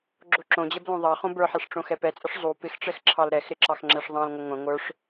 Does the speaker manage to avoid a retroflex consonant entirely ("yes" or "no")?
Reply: no